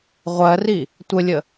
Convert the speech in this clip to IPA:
ʁʷ ɜ r i | tʷ ə lʲ ə

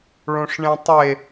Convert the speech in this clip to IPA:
ɭ õ ʂ ɳ ẽ tˤ e

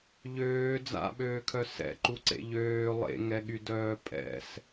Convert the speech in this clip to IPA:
ʎ øː d͡z a̰ ɓ øː kʰ œ s ɛ̰ ǃ u ǀ ḛ ʎ øː lˠ ḛ ŋ ɛ ɠ y d œː pʼ ɛ̰ s

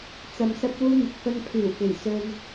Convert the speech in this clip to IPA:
t͡s ɐ˧ m s ɐ˥ p̚ w uː˥ n̪ ɪ˨˥ k̚ f ɐ˧ n pʰ iː˨˩ w k e˨˩ j s ɵ˧ n

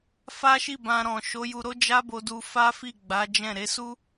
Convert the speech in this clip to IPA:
f a˦ ʃ i˦˨ b ã˧ ɾ ɔ̃˨ ʃ o˨˦ j u˧ ɾ o˦ d͡ʒ a˦ b o˧ d u˧ f a˦ f i˦˨ ɡ͡b a˨˦ d͡ʒ ɛ̃˦˨ ɾ e˨˦ s u˦

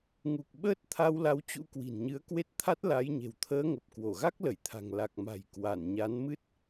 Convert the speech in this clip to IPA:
ŋ u˨˩ k̚ ɓ əː˦˥ t̚ t̪ʰ a˧ w l a˨˦ w t͡ɕ ṵ˧˥ k w i̤˨˩ n ɲ ɨ˨˦ ə̯ k w e˦˥ t̚ t̪ʰ a˦˥ t̚ l a˨˦ j ɲ e̤˨˩ w t̪ʰ əː˧ ŋ ə˨˩ p̚ k w o˧˩ ɣ a˦˥ k̚ l ə˧˩ j t̪ʰ a̤˨˩ ŋ l a˨˩ k̚ m a̤˨˩ j k w a˧˩ n ɲ a˨˦ n m ɨ˦˥ t̚

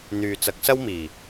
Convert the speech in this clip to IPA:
n̪ yː˨ t͡s ɐ˨˥ k̚ s ɐ˥ w m iː˨˩

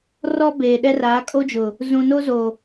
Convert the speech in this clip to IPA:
r ɔ˦ b eː˨ ɗ ɛ˦ r aː˨˦ kʼ o˦ d͡ʒ ʊ˨ | z ũ˨ n o˦ z o˨

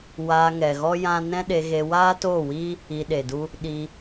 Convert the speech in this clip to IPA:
w aː˧ ŋ ɛ˨ ɣ ɔ˦ j ã˦ n ɛ̃˦ ɗ e˧ ɣ e˧ w aː˦ t oː˦˨ w iː˦ | i˧ ɗ e˨ d u˦ | ɗ i˧

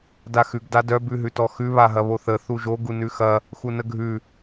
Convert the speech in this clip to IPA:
d a x ʉ ɡ d a d œ b ʉ ɦ ʉ t ɔ x ʉ β a ɦ ɐ β o θ ə θ u ʒ o ɡ u n ʉ x ɐ | x u n ə ɡʱ ʉ

